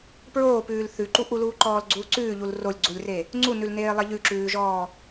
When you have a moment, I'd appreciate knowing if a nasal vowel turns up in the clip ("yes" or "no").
no